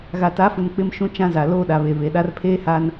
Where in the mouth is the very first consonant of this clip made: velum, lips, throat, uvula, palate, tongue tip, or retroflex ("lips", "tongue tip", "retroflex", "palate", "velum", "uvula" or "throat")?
velum